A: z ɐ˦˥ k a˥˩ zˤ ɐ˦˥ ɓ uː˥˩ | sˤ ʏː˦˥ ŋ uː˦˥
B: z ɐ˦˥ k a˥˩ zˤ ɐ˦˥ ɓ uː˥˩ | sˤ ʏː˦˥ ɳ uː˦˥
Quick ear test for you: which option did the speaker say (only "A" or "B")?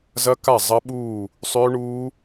B